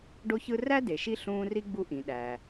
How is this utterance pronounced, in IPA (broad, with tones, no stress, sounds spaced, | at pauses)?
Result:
ɖ o˦ ç ɯ˦ r æ˥ d e˩ ʃ i˦ ɬ ũː˦ r i˥ ɡ͡b u˥ ʔ ĩ˩ ɗ æ˩